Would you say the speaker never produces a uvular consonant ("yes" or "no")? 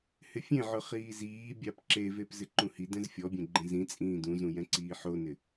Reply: no